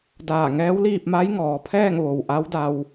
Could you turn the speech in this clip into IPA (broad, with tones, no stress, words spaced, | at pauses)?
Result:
daː˧˩ŋɛː˧˥w liː˥˨p̚ ma˧˥jŋɔː˩˧pʰɛː˥˨ŋ ʋo˩wʔa˧˥wda˧w